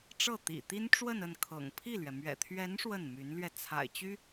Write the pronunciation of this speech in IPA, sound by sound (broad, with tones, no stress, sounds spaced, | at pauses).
ʈ͡ʂ ɤ˥˩ t̪ ḭ˨˩ t̪ i˥ n ʈ͡ʂ w ə˥˧ n ə˥˩ n kʰ ɤ̰˨˩ ŋ pʰ i˥˩ l ɥ ɛ˩ m ɥ ɛ̰˨˩ t̪ʰ ɥ ɛ˧˥ n ʂ w ə˥˩ n m y˧˥ n l ɥ ɛ˧ t͡sʰ a̰˨˩ ɪ̯ t͡ɕ y˥